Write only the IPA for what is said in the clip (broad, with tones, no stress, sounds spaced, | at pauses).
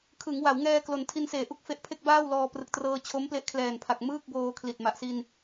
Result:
kʰ ɯ˩˦ ŋ w a˩˦ w ŋ ɛː˧ k l o˩˦ n tʰ i˧ n s eː˨˩ ʔ u˥˩ k̚ f e˦˥ ʔ pʰ e˥˩ k̚ b aː˥˩ w l ɔː˧ p r ɯ˨˩ k̚ t r ɤː˧ t͡ɕʰ o˦˥ m p l e˦˥ ʔ kʰ l ɛː˨˩ n pʰ a˨˩ k̚ m ɯː˥˩ k̚ b oː˧ kʰ l i˨˩ t̚ m a˨˩ ʔ s i˧ n